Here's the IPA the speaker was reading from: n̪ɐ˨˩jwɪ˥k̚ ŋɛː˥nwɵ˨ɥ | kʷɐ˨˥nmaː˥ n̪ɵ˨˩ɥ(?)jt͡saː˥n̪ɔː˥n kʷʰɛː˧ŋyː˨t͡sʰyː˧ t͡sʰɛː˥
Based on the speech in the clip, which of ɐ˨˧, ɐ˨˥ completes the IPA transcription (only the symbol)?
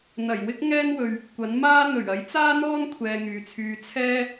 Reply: ɐ˨˥